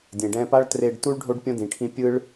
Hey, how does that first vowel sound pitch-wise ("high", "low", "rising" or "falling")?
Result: low